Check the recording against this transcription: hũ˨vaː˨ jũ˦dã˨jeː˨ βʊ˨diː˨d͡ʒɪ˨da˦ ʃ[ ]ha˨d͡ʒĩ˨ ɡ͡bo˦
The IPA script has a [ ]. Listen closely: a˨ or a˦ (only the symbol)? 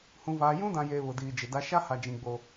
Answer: a˦